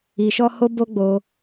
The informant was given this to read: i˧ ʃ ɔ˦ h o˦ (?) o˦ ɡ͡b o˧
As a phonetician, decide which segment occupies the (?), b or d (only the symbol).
b